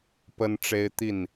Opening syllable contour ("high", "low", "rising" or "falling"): high